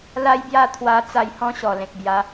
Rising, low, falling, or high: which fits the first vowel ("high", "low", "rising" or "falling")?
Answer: high